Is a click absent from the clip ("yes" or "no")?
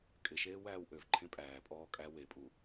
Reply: no